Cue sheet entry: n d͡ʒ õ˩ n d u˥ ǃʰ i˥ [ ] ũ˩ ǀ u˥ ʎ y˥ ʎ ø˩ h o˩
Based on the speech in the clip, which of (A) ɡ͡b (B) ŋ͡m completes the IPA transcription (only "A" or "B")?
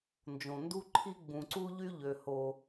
A